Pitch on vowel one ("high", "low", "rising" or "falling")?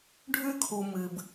high